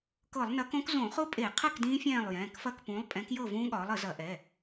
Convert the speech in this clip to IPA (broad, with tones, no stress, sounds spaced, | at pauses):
k ɤ˧˩˧ lˠ n ɐ˨˥ k õ˦˥ k z õ˧˩˧ χ ʊ˦˥ pʼ e˧˩˧ qʰ ə˥˨ k d ĩː˦˥ fʲ ɛ̃ː˥˨ lˠ j ɛ̃ː˩˧˩ k f ɐ˥˨ k p ũ˨˥ lˠ pʼ ɛ̃˨˥ k j ɤ˥˨ v ũː˦˥ ɠ ɒː˨˥ lˠ ə˧˩˧ z ɐ˧˩˧ ʔ ɛ˩˧˩